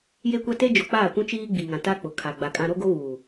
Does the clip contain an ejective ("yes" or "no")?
yes